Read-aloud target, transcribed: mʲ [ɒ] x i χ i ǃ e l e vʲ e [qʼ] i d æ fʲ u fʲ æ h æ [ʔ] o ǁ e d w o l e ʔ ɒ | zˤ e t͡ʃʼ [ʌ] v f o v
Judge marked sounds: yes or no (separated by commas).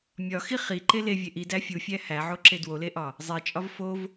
yes, no, no, no